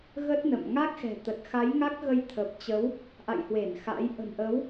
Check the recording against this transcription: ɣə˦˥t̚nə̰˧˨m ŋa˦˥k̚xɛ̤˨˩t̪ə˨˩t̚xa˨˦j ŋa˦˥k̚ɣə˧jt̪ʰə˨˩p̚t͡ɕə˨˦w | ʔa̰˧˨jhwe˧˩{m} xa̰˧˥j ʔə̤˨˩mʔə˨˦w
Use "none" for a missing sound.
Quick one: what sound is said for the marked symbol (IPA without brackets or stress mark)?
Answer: n